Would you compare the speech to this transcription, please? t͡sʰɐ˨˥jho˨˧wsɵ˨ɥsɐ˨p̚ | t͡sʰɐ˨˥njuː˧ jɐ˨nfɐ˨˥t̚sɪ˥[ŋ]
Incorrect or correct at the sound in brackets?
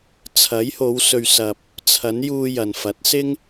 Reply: correct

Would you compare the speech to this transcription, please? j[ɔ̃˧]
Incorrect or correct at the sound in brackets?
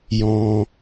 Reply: correct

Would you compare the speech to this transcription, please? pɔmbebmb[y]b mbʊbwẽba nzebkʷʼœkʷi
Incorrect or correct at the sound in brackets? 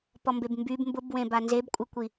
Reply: correct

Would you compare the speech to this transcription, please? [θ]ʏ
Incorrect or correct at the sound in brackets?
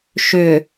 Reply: incorrect: ʃ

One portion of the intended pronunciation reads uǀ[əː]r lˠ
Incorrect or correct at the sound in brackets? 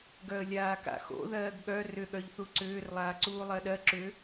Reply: incorrect: ʏː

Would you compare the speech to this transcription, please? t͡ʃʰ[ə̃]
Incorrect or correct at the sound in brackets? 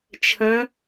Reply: correct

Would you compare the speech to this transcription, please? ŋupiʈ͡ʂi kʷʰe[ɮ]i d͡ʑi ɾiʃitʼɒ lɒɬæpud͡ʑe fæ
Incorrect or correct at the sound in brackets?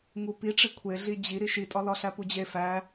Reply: correct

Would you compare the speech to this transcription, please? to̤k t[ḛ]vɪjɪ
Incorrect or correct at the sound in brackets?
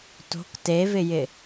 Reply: incorrect: e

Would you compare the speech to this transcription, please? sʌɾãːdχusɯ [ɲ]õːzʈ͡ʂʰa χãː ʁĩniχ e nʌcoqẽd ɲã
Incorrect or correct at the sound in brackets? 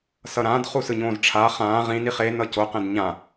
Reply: correct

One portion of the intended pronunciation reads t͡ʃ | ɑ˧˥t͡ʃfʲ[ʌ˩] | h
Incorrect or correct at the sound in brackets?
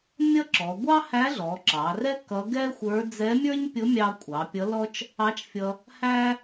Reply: incorrect: ʌ˧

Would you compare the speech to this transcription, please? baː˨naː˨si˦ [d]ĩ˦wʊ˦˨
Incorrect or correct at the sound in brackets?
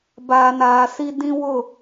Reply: correct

